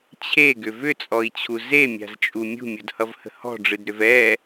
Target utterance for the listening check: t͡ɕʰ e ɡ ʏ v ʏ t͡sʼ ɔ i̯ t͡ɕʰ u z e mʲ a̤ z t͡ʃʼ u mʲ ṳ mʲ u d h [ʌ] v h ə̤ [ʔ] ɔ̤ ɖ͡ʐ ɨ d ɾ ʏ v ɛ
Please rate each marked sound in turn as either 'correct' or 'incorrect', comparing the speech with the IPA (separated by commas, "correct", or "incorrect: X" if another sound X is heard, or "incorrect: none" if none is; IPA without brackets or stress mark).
correct, incorrect: h